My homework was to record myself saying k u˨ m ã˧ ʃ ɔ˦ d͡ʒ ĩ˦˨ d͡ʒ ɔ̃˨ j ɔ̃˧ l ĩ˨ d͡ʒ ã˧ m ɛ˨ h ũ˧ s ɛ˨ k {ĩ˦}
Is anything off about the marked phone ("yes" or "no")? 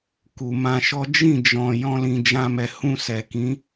yes